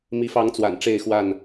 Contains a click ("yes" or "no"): no